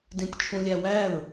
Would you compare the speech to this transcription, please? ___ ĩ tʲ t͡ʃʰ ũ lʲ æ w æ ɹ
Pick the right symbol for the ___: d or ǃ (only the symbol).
d